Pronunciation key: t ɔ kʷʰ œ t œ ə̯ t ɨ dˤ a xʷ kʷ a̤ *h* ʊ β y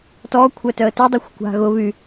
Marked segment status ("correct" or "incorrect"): incorrect